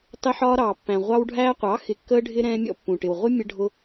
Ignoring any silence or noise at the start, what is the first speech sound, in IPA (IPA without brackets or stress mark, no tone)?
tˤ